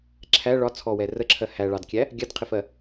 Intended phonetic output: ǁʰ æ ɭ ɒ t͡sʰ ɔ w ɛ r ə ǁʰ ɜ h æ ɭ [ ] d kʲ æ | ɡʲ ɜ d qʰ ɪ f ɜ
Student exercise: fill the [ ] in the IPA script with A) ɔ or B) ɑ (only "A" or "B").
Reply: B